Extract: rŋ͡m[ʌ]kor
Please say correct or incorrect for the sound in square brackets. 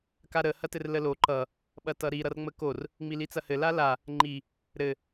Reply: incorrect